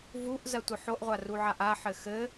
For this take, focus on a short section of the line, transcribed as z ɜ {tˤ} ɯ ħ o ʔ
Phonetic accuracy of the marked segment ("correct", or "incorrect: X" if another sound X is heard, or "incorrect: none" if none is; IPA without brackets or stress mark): incorrect: tʷ